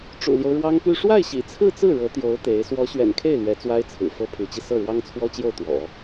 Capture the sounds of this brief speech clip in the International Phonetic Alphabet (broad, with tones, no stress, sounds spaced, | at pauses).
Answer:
ʈ͡ʂ ṵ˨˩ l j o˦ ʊ̯ ɻ w ɑ˥ ŋ p y˥˧ ʂ w a˥˩ ɪ̯ ɕ ḭ˨˩ t͡sʰ ɹ̩˥˧ t͡s ɹ̩˥˩ ɻ ɤ˧˥ t̪ j o˧˥ ʊ̯ t̪ e˧˥ ɪ̯ s w ɔ˧˥ ɕ ɥ ɛ̰˨˩ n kʰ e˥˩ ɪ̯ l ɥ ɛ˧˥ t͡s w a˥ ɪ̯ t͡sʰ ɹ̩˨˩ f ɤ˥ pʰ y˧˥ t͡ɕ i˧ s ɤ˥˩ ɻ w ɑ˥ ŋ t͡sʰ w ɔ˥ t͡ɕ j o˥˩ ʊ̯ t̪ w ɔ̰˨˩˦